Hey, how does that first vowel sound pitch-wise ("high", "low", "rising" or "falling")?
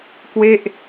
falling